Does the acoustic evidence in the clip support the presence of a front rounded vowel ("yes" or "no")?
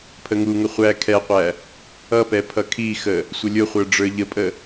no